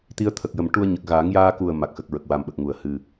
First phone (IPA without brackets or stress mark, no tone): t̪